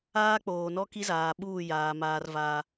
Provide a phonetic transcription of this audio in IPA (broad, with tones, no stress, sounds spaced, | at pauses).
aː˦ k͡p oː˨ n ɔ˦ k i˦ z aː˨ ɓ uː˦˨ j aː˨ m aː˦ r v a˦